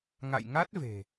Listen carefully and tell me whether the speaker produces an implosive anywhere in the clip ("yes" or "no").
no